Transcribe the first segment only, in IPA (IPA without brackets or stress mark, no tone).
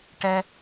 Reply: ʈ